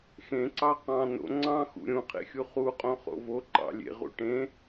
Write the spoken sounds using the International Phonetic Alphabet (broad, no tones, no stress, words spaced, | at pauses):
xẽǀɑ qɑ̃ no̰ ŋ͡ǀɑ̃xṵ ɾʲũqʰḛxʲu χuqʼõχo̰ voǃɑ̰ lʲḛʁṵ ʈẽ